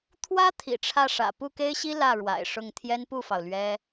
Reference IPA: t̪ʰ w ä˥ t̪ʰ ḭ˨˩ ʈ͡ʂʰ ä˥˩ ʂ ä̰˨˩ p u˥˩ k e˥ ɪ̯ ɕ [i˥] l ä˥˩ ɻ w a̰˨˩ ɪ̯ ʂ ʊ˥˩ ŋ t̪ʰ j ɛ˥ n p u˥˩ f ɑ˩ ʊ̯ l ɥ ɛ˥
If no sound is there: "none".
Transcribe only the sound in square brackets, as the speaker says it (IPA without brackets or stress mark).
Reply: i˥